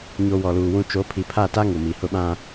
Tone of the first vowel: high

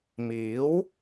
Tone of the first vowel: rising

